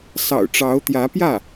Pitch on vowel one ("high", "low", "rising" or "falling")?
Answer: low